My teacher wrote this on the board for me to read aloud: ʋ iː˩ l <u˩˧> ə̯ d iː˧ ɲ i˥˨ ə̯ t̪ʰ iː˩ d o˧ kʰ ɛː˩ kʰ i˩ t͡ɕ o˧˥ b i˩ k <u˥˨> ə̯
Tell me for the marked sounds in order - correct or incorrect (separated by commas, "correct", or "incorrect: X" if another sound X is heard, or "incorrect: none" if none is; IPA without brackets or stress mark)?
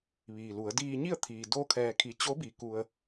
correct, incorrect: u˩